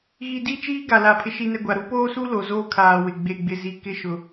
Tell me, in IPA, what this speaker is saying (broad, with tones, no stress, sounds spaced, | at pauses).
ɣ i˨ d i˦˨ t͡ʃ iː˦ ɡ a˨ l a˨ pʰ ɪ˨ ʃ i˨ n ɛ˨ ɡʷ a˨ ɾ u˦ p oː˦ s u˦ l o˨ z oː˦ kʰ aː˨ w ɪ˨ ɡ͡b e˨ ɡ͡b ɪ˨ z i˨ k ɪ˦ ʃ ʊ˨